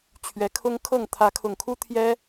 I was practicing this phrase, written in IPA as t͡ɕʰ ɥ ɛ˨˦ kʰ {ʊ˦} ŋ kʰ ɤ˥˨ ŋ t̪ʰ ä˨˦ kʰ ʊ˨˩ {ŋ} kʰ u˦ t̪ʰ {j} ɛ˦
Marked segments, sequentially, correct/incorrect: correct, correct, correct

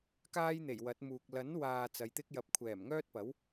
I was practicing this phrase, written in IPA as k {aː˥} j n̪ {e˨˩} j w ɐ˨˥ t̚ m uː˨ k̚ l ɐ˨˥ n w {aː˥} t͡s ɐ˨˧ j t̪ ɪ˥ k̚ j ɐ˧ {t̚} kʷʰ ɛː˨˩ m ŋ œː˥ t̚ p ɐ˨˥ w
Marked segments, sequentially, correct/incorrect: correct, correct, incorrect, incorrect

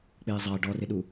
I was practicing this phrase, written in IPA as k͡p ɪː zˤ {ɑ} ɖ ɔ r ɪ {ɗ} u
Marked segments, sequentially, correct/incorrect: correct, correct

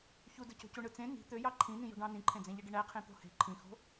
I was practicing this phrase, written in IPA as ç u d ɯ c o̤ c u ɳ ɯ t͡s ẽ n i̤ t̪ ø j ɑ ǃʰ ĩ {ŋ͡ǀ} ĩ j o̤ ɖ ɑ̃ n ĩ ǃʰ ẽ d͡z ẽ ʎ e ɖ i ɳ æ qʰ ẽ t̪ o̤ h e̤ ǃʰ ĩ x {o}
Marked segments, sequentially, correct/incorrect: incorrect, incorrect

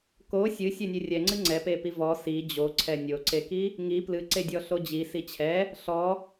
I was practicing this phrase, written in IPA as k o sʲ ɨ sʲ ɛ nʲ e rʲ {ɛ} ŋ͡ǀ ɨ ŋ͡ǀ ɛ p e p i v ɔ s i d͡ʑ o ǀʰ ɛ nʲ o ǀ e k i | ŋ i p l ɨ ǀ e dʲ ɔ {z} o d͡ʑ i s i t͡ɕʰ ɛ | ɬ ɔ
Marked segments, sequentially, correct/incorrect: correct, incorrect

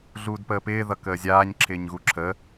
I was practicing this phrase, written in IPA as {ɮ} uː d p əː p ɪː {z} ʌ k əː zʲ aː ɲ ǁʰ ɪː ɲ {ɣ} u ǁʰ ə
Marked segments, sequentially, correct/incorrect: correct, incorrect, correct

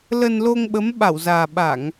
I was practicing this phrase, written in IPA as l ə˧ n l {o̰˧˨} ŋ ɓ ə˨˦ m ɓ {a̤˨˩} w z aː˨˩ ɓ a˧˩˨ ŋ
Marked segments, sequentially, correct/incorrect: incorrect, incorrect

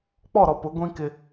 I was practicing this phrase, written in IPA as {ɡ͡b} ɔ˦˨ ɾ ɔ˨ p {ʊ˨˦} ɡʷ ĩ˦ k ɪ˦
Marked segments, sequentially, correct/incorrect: incorrect, correct

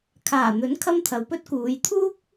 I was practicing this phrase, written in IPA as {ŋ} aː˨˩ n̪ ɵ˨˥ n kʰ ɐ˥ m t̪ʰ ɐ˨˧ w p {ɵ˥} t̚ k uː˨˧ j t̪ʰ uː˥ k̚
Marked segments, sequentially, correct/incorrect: incorrect, correct

